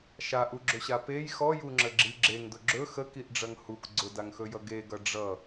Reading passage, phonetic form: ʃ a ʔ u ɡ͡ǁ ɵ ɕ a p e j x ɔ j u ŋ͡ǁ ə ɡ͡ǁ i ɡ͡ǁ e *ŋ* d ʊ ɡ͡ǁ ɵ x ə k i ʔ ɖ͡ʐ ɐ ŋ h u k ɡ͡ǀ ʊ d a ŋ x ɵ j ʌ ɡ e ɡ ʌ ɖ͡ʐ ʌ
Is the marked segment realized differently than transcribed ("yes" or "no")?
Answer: no